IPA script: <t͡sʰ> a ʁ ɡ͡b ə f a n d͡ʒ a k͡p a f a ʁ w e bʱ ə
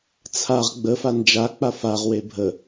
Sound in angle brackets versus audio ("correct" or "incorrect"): correct